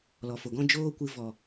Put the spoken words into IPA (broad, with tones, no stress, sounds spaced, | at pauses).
l ɔ˨ f o˨ ɡ ɔ̃˦ d͡ʒ oː˦ kʷ ɨ˧ v ɔ˨